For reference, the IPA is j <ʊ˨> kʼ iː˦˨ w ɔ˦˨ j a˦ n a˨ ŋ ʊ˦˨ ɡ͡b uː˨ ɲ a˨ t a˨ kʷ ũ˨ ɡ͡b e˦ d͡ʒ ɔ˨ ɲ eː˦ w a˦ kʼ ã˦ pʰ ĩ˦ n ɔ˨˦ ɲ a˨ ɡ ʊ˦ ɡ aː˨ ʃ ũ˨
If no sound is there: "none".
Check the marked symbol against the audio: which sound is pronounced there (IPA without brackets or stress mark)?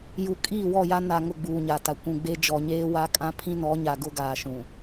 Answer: u˨